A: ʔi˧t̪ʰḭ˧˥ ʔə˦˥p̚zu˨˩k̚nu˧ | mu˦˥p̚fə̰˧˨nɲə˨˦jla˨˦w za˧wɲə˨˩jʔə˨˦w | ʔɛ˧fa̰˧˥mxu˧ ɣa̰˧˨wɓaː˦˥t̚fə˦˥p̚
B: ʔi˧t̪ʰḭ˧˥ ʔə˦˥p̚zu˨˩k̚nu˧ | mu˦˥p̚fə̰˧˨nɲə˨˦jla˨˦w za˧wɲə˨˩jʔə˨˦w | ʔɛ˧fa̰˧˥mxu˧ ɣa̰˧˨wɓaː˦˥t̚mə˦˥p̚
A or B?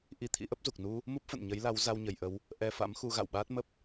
B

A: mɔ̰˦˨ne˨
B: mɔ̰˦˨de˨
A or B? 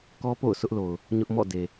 B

